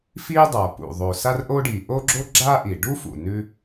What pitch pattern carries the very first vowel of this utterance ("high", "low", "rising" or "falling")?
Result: high